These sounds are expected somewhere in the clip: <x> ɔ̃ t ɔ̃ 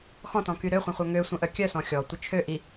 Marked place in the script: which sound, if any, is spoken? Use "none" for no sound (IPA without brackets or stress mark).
x